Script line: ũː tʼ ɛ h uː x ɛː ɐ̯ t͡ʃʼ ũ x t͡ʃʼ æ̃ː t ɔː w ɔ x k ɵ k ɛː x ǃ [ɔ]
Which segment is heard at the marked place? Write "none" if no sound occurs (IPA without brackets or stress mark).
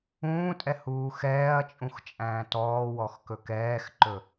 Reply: ɵ